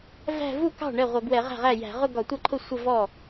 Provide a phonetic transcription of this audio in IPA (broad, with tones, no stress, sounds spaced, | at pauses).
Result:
v æ̤˥˧ v u˥˩ k ɑ̤˥˩ ɳ ɛ˥˩ ʁʷ ʌ˧˩˧ ɡ w ɛ˧˩˧ ʁ æ̤˥˩ ʁ æ˥˩ j æ̤˧˩˧ ʁ ʊ˥˧ ɡ ɒ˧˩˧ tʷ ʌ˥˩ ǃʰ ʊ˥˩ sʷ ə˥˧ v ɔ˥˩